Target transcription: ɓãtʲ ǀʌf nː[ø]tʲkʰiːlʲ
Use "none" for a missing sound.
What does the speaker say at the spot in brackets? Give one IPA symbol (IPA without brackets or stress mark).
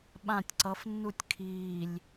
u